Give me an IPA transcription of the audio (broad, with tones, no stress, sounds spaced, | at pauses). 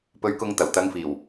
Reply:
p ɵ˧ ɥ k ʊ˧ ŋ t̪ ɐ˨˩ w t̪ ɐ˨˧ ŋ f iː˨˩ w